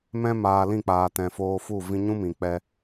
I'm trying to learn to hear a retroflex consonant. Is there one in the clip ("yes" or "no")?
no